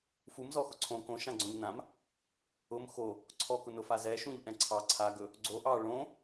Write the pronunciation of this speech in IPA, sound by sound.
f u m z ɔ x ʊ ǀʰ õ k õ ʃ ã ɡ͡ǀ õ ʎ n ã m | ʊ m x o | ǀʰ ɔ k ʊ n ʊ f a z ɛ ʃ ũ ʎ ʔ ɛ̃ ǀʰ ɑ ǀʰ a ɡ ɵ | ɡ͡ǀ o ʔ ɑ ɭ õ

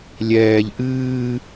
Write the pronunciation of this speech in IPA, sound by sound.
lʲ ɛː ʎ ʔ ɨː

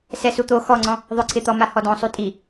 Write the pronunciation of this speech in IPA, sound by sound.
s ɛ s u t̪ o x ɔ ŋ͡ǀ ɔ̃ | ðˤ ʊ ǀʰ ɪ t̪ ɔ m a h ɔ d ɔ̃ sˤ u tʼ i

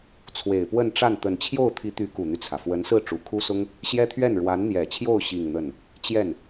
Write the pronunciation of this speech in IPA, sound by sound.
t͡sʰ w e˨˩ ɪ̯ p w ə˥˧ n ʈ͡ʂ a˥˩ n t̪ ə˨˩ n t͡ɕʰ j o˥˩ ʊ̯ t̪ʰ i˧˥ t̪ y˧˥ k u˨˩ n̪ y˦ t͡sʰ ä˩ f w ə˧˥ n s ɹ̩˥˩ ʈ͡ʂ u˨˩ kʰ u˥ s ʊ˥ ŋ | ɕ j ɛ˥ t̪ʰ ɥ ɛ˥˩ n ɻ w a˧˥ n n̪ j ɛ˨˩ t͡ɕʰ j o˥˧ ʊ̯ ɕ i˥˧ ŋ n̪ ə˥˩ n | t͡ɕ j ɛ˥˩ n

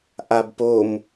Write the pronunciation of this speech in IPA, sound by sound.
ʔ a b p o m

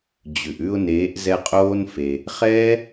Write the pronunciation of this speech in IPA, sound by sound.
d͡ʑ ʉ˨ ʔ ʉ˧ ʊ̯ n eː˨˦ ʔ z ɛ˧ qʼ oː˦ n f e˧ | χ ɛː˦

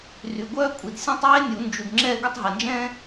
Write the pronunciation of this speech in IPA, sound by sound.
r y˨ ɡʷ œː˥ kʷʼ i˨ d sʲ ɔ̃˥˧ tˤ eː˥ nʲ u˨˩˦ n d͡ʒ u˨ d ŋ͡ǁ ɛ˥˧ ɡ ʊ˥˧ tˤ ɦ ɛ˨ n d͡ʒ ɛ̃ː˥

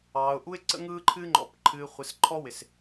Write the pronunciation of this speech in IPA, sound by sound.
ɑː˨ ʊ̯ ʔ u˦ ɪ̯ ǀ ə̰˦ ŋ ɯː˦ ǃʰ ɨː˦ ŋ͡ǃ ɔ̰˨˦ p ǃʰ ɨː˨ χʷ ɨ˨ s ǃʰ ɔ˦ w ɪ˨ s

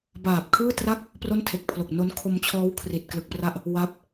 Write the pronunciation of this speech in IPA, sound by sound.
b aː˨˩ p̚ kʰ ɯː˥˩ t r a˥˩ k̚ | p r o˥˩ n tʰ e˨˩ k̚ pʰ l o˨˩ k̚ n o˦˥ n kʰ o˧ m t͡ɕʰ ɔː˦˥ w kʰ r i˨˩ t̚ k l ɯ˨˩ k̚ p r a˥˩ ʔ | w a˦˥ p̚

